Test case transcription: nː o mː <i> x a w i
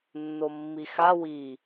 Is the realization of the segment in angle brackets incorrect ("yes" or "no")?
no